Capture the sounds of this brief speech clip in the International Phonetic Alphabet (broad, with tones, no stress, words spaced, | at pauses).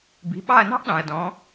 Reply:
bi̤˩˧˩ɓɑ˦˨ɐ̯nɑ̤˥ʔɗɑ̃˩ɐ̯ dɔ̃˨˦